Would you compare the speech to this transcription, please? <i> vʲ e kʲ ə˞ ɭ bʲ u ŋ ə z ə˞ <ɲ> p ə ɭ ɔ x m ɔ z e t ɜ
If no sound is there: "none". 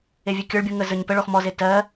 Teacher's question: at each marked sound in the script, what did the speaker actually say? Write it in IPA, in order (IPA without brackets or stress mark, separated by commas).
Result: e, ɲ